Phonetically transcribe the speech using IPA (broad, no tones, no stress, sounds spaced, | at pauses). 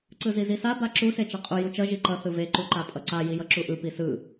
ǀ ɯ z i z i s a b a ǁ u s e t͡ʃ a qʼ u j u t͡ʃ ʌ ʒ i ǃ ʌ θ ɯ v e ǃ u ǃ a pʼ ʌ ǀ a j i j ʌ ǁ u ʔ ɯ p i s ɯ